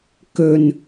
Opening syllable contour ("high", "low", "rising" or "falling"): low